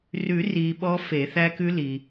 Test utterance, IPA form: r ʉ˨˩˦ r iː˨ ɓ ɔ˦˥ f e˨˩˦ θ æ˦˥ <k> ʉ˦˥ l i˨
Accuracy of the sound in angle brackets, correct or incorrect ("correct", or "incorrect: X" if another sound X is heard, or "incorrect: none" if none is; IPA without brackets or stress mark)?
correct